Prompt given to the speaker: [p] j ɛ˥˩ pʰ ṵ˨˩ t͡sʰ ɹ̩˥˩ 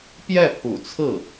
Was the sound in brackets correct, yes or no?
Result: yes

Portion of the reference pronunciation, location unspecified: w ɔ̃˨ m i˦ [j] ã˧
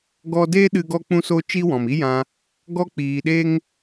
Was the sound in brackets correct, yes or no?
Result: yes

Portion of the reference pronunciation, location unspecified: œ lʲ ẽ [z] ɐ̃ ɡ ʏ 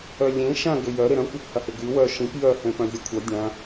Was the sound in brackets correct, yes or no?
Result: no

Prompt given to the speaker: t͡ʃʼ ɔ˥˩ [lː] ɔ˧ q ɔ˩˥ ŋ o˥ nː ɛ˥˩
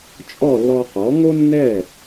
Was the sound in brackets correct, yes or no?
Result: yes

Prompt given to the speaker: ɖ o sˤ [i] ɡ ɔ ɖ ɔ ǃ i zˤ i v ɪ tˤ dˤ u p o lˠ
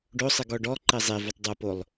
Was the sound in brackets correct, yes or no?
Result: yes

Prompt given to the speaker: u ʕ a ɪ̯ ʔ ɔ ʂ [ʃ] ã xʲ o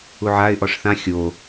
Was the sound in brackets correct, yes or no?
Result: no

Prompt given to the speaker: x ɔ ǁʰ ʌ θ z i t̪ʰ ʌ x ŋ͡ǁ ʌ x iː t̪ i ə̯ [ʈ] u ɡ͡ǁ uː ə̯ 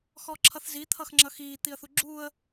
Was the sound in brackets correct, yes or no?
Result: no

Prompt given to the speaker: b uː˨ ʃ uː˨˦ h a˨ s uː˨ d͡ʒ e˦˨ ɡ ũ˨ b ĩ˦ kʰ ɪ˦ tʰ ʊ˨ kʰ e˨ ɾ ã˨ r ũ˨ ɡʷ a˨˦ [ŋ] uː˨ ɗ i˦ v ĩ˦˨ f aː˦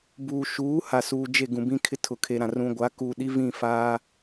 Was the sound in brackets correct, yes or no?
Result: no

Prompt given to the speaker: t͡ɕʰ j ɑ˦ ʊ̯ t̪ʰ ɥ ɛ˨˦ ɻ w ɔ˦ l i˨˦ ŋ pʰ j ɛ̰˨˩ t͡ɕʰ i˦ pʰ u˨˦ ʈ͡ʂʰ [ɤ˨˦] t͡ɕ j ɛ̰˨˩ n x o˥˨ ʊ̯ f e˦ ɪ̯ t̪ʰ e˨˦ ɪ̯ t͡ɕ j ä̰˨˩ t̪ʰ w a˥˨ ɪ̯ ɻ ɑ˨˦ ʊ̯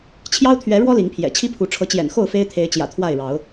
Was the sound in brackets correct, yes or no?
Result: yes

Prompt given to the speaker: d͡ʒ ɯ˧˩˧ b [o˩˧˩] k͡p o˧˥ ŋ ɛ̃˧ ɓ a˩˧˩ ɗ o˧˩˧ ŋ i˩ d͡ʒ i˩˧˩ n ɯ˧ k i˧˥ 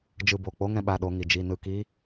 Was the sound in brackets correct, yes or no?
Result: yes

